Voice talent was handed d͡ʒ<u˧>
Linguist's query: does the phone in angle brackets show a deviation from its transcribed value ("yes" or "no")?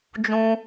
yes